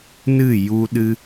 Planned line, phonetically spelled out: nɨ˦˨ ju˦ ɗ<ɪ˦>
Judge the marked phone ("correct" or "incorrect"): incorrect